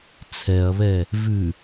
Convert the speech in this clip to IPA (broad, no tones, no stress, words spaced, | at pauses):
t͡sʰɛɐ̯βɛ | vʉ